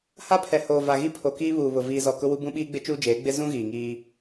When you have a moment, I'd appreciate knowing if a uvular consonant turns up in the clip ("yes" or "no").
no